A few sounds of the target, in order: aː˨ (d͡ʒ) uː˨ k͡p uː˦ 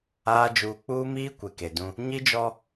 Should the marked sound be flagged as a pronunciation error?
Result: no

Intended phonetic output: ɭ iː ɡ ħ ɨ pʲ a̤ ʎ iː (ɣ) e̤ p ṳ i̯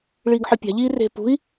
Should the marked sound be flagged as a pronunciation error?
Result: yes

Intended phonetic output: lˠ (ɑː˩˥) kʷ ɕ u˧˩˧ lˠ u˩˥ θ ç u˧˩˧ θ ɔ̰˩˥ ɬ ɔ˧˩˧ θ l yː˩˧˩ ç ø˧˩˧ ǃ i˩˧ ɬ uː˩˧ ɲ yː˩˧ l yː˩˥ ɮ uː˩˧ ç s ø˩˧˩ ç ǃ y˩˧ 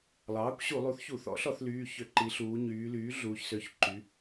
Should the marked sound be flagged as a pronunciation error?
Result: no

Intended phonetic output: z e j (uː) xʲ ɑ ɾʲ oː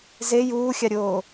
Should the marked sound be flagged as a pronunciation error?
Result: no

